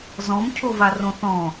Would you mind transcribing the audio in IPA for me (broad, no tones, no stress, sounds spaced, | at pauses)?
z ɔ̃ m cʰ o v a r õ θ ɔ̃